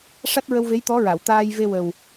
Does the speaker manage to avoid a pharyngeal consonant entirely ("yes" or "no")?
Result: yes